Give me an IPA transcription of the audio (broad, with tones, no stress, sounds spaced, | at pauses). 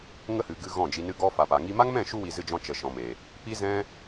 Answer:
ŋ ə˦ h ɨ˨ ɡ ɨ˧ ɣ ɔ̃˦˨ d͡ʒ i˧ n ɨ˦ ɡ ɔ˦ f a˨ p a˨ ŋ i˦ m a˦ ŋ m ɛ̃˦˨ ʃ u˧ w i˨ z ɨ˧ d͡ʒ ɔ̃˧ t͡ʃ ə˨ ʃ ɔ̃˨ m e˨ | p i˦ z ɛ̃˦